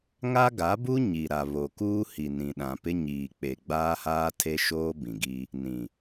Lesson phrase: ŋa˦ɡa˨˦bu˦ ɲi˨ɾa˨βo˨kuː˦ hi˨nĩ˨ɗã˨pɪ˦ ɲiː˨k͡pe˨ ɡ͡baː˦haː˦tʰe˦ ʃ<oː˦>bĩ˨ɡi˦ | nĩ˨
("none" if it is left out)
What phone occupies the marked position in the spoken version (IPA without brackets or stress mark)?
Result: oː˦